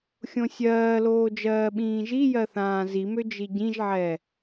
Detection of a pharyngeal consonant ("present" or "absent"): present